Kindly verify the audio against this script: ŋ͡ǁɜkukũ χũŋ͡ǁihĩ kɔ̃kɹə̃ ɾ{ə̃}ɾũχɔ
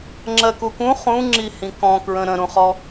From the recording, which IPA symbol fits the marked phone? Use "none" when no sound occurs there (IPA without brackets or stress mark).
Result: ə̃